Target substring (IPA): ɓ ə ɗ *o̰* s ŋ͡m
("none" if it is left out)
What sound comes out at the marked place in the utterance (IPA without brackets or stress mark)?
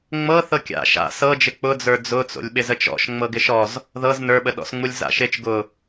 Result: ɔ̰